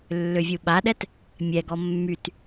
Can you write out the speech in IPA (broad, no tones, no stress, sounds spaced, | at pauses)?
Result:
lː ø vʲ u ɓ a ɗ ɛ t | mʲ ɛ ɡ ɔ mː y t